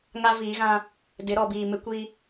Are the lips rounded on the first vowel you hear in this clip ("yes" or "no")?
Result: no